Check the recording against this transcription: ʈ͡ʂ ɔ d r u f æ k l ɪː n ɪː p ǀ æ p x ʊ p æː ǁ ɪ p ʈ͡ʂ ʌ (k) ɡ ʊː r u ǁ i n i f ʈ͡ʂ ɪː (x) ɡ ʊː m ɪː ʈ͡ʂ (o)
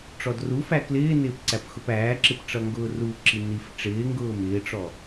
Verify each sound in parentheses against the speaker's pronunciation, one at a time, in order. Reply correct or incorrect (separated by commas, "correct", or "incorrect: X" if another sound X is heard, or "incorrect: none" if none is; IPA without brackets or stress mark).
incorrect: ŋ, incorrect: ŋ, incorrect: ɔ